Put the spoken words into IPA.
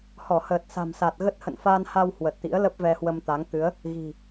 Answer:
h ɔ˧˩ h əː˨˩ t̚ s a̤˨˩ m s a˨˩ t̚ ɣ ə˦˥ t̚ h ə̰˧˨ n f aː˧ n h a˧ w h w ə˨˩ t̚ t̪ ḭ˧˥ ə̯ l ə˦˥ p̚ v ɛ˧ h w ə˧ m t̪ a˨˦ ŋ t̪ ɨ˨˦ ə̯ | ɣ i̤˨˩

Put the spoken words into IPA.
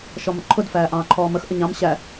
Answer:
ʃ ɔ m ə̰ ǃʰ ʊ d f æː ʔ ɑ̃ː ǃʰ ɔː m ə x ʔ ə ɲ ɑ̃ m ɕ æ

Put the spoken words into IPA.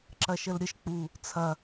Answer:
ǁ ɐ ʃ ə l ɾʲ ə ʃ k͡p u | t͡sʰ ɐ

